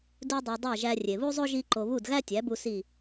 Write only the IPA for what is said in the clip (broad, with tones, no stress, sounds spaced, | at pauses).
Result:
d u˧ dˤ i˩ dˤ æ˥˩ ʒ æ˧ rʲ e˩ β u˥ zˤ o˥ ʒ i˥ ǃ o˧ β u˥˩ d ɣ æ˥ tʲ æ˩˥ b u˧ s i˥˩